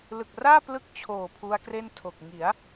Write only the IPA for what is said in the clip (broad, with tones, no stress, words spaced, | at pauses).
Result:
lɯ˨˩k̚raː˥˩ plɯ˥˩k̚t͡ɕʰoː˨˩ pʰu˦˥a̯kre˥˩ntʰo˨˩k̚ ŋi˩˦a̯